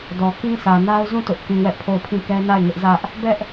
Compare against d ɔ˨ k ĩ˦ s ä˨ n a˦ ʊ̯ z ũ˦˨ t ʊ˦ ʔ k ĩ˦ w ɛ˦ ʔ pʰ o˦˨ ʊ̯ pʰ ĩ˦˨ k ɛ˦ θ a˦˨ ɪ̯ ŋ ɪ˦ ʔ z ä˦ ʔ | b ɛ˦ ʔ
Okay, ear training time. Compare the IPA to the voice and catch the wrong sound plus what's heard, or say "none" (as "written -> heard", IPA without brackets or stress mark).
θ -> n